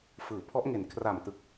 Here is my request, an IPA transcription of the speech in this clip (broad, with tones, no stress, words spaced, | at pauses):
fɯː˩˦pʰɔ˦˥ʔŋe˨˩n kʰra˨˩mtɯ˨˩k̚